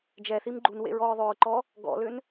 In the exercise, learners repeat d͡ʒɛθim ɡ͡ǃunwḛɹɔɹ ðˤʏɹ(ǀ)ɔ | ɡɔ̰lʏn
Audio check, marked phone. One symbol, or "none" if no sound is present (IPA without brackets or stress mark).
ǃ